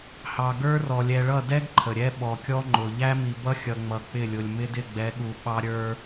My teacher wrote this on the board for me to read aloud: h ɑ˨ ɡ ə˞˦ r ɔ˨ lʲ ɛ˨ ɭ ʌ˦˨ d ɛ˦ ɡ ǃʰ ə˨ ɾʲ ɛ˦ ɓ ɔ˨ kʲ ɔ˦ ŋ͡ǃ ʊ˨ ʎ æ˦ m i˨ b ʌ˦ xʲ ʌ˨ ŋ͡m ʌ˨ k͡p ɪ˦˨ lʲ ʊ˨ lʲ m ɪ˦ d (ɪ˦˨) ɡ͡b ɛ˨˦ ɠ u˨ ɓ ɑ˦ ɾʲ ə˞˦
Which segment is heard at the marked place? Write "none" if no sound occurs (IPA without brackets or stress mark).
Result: ɪ˦˨